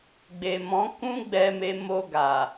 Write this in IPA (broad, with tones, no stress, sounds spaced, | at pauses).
ɡ͡b e˨ m ɔ̃˨˦ k ũ˦ ɡ͡b ɛ˧ m e˧ m o˧ ɡ a˨